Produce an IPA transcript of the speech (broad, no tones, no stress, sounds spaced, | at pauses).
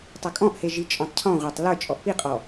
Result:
tˤ a kʼ ɔ̃ ʔ h e ʒ i t͡ʃʼ ɔ̃ tˤ cʰ ɔ̃ ʁʷ a tˤ l ə˞ t͡ʃʼ ɔ ʔ p i qʼ ɔ